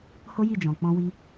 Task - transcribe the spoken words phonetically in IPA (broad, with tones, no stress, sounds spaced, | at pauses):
h o˦ j i˦˨ d͡ʒ ɔ̃˨ k͡p ɔ̃˧ w i˧